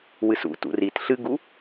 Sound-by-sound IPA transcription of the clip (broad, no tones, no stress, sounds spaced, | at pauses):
w ɨ s ṵ t ṵ r i t ɬ ɨ ɡ u